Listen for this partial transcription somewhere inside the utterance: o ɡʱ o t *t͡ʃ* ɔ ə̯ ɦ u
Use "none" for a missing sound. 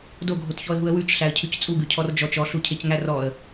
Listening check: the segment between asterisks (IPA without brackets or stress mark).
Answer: ç